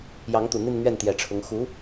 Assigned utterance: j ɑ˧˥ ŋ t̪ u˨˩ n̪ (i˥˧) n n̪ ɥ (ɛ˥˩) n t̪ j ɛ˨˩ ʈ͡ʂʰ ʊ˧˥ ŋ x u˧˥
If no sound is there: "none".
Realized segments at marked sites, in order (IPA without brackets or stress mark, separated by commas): i˥˧, ɛ˥˩